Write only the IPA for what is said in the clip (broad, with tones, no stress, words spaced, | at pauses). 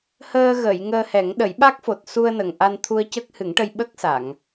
həː˧ɣə˨˩˨j ŋəː˧hɛ˨˩˦ŋɗə˨˩˦j ɓa˦˥k̚fo˨˩t̚su˧ə̯ nə˨˩ŋʔa˧n t̪ʰu˧ə̯cə˦˥k̚hɨ˨˩˦ŋʈə˧j ɓə˦˥k̚sa˨˩˨ŋ